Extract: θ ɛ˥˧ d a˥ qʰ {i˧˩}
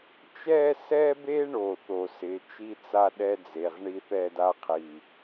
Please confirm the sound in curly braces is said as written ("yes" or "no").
yes